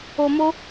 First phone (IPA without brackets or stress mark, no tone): o